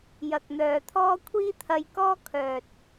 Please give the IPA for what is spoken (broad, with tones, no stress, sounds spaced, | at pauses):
j ɐ˨ k̚ n̪ œː˨ t̪ʰ ɔː˥ kʷʰ iː˥ t̪ʰ ɐ˧ j k ɔː˥ kʰ œː˨ t̚